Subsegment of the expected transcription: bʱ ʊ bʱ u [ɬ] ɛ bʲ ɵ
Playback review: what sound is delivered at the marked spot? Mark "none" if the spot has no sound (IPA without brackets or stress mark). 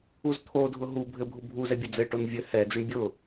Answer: z